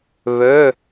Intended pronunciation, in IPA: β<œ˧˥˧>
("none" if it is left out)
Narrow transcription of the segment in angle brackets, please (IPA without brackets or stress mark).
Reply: œ˧˥˧